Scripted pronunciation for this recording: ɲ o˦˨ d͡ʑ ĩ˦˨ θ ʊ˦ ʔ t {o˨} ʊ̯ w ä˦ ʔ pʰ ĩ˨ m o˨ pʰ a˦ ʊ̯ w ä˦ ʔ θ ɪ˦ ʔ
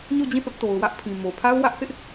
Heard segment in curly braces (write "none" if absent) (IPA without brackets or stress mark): o˨